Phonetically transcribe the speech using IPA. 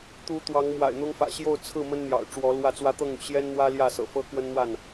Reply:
t̪ u˨˦ t̪ w ɑ˨˦ ŋ m w a̰˨˩ ɪ̯ n̪ ʊ˦ ŋ f ä̰˨˩ ɕ j o˥˨ ʊ̯ t͡sʰ ɹ̩˥˨ m ə˦ n n̪ j ɑ̰˨˩ ʊ̯ ʈ͡ʂ w ɔ˨˦ l w ä˥˨ t͡s w ä˦ t̪ ɤ˥˨ ŋ y̰˨˩ ɕ j ɛ˦ n n̪ w ä˦ l j ä˥˨ s ɤ̰˨˩ f ɤ˦ k w ə˦ n n̪ w a˥˨ n

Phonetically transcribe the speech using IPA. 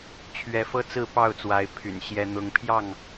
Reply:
t͡ɕʰ ɥ ɛ˨˦ f ɤ˦ t͡s ɹ̩˥˨ p ɑ˥˨ ʊ̯ t͡s w a˨˦ ɪ̯ pʰ y̰˨˩ n ɕ j ɛ˦ n̪ ʊ˦ ŋ pʰ j ɑ˥˨ ŋ

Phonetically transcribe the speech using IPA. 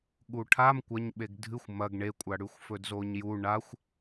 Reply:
ɠ u ʈʰ a m kʷ ɐ ɲ ɓ e ɡ dʱ ɨ xʷ m ɐ ɡ ɳ e kʷʼ a ɽ ʉ xʷ f ɵ d z o ɲ j u ɳ a xʷ

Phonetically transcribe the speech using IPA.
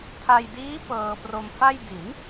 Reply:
tʰ a˧ j d iː˦˥ p ɤː˧ p r o˧ m f a˥˩ j d i˩˦ n

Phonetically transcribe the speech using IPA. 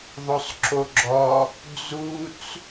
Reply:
ðˤ o sˤ ǁ o ɡ͡ǁ ɔ | d͡z u t͡s

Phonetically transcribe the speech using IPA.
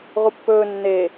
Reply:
ʁ u pː ɵː nː e

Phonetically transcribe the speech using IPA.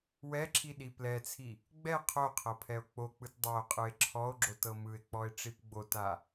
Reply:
w ɛ ǁʰ i ɗ i p l ɛ t͡sʰ i | ɡ͡b ɛ qʰ o qʰ ɤ pʰ ɛ o̯ k͡p o k͡p ɯ t dˤ a o̯ qʼ ɯ e̯ ǁʰ ɔ o̯ ɡ͡ǁ o t ɤ m ɯ e̯ k͡p ɔ e̯ ʈ͡ʂ i p ɡ͡b o t a

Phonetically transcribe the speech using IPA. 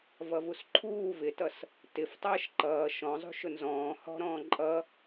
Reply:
v ʌ v u s ǃʰ uː v ɪ t ʌ s | t ɪ f tˤ ʌː ʃ ǃ ʌː ʃ ɔ̃ zˤ ṳ ʃ ʊ n z ɔ̃ː h ɔ̤ ɾ ɔ̃ː ǃʼ ʌ

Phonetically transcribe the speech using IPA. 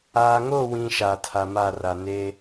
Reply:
aː˨ ŋ o˦˨ w ĩ˨ ʃ aː˨ tʰ a˨ m a˦˨ r a˨ n eː˦

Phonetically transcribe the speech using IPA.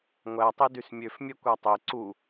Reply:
ŋʷ æ tˤ i d y s mʲ ø f mʲ ɛ kʷ æ tˤ e ǀ u

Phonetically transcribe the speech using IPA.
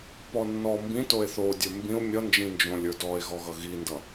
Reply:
p ɔ nː ɔ m b ĩ t o e̯ θ o dʲ ə˞ m b ĩ o̯ mʲ ʌ n d͡ʒ ĩ n d͡ʒ õ lʲ ə˞ d ɔ e̯ ɣ ɔ ɣ ʌ ɣ i n d ʌ

